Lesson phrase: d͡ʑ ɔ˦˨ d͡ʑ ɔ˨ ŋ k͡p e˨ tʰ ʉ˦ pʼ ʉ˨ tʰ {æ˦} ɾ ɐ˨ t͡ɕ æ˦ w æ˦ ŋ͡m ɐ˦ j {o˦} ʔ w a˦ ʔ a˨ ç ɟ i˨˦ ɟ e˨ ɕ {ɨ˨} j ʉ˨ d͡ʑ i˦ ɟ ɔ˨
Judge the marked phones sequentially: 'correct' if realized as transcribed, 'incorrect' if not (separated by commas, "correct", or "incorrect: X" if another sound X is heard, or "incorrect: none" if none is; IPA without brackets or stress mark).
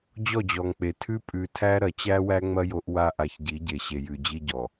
correct, correct, incorrect: e˨